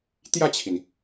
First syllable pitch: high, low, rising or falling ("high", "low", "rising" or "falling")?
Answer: falling